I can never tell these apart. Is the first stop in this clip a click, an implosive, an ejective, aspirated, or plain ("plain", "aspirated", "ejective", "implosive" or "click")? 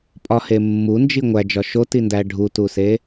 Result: ejective